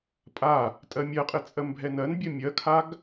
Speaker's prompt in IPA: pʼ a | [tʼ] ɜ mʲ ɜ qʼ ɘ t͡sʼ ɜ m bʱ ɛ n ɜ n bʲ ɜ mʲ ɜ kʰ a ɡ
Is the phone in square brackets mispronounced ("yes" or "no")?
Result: no